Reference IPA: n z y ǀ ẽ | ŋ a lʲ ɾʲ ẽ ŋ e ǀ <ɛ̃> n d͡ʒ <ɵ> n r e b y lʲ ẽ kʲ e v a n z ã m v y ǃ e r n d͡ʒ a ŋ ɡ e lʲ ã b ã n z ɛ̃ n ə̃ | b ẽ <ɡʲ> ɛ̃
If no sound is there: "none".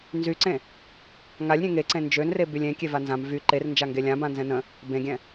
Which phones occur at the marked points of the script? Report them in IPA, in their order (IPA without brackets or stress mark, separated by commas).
ẽ, ø, ɡʲ